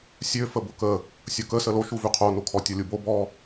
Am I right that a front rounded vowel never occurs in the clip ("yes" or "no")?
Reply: no